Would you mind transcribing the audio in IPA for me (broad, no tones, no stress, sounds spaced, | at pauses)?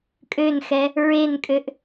kʼ ø n x ɛ | ɹ e n kʼ ø ʔ